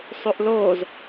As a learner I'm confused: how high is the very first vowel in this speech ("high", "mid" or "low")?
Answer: high